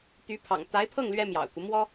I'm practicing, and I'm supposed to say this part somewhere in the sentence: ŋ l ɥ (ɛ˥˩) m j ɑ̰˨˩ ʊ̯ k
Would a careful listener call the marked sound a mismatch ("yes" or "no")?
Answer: yes